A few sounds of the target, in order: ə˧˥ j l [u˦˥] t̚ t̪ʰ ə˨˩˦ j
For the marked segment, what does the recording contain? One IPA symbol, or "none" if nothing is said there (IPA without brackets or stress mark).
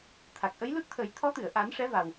u˦˥